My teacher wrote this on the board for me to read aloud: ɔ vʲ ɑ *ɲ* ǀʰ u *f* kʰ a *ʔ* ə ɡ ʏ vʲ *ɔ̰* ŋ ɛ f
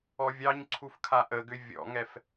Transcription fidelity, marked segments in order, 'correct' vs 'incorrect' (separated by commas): correct, correct, correct, correct